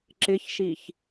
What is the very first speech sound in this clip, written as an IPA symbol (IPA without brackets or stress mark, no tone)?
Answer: ǁ